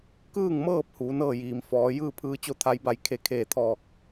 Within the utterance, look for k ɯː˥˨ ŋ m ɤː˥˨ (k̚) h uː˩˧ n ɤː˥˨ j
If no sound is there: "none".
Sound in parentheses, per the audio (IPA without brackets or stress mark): p̚